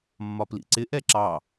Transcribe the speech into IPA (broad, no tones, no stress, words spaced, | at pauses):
mːɒplḭǀɪ ʔɛǁɑ